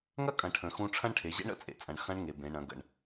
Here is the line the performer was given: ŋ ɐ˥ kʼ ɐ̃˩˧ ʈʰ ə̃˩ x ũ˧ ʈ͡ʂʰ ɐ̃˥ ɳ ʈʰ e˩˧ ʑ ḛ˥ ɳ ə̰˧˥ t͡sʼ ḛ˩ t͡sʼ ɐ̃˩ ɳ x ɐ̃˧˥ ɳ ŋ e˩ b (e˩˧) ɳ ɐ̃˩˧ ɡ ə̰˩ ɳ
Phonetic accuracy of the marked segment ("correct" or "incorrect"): incorrect